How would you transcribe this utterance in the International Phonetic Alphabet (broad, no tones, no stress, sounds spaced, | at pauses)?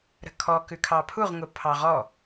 ɾ ə̤ kʰ ɔ k ʉ kʰ ɑ pʰ u ʁ ŋ ʊ pʰ ɑ ʁ ɔ